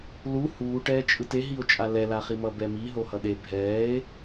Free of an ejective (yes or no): no